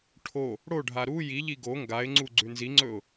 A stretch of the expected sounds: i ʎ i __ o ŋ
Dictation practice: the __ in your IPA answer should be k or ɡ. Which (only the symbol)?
ɡ